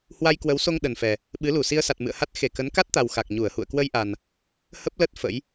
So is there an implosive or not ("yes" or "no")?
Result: yes